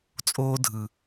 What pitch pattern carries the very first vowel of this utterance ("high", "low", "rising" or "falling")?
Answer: high